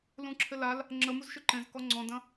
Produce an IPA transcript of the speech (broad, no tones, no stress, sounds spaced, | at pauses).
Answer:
l ũ ǁʰ ɪ l a l | ŋ͡ǁ ə m u z ʃ ʏ ǃ ẽ z k ɔ ŋ͡ǀ ɔ̃ d ɐ̃